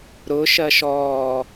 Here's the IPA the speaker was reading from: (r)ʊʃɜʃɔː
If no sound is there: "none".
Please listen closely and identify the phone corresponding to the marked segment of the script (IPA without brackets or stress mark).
ɾ